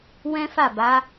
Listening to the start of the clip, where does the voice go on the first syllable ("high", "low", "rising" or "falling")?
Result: high